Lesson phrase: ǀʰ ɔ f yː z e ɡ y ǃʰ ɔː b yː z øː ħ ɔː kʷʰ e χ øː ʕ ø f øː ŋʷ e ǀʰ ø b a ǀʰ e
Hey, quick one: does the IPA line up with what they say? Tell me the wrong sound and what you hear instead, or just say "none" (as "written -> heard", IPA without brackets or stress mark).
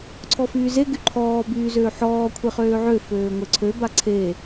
none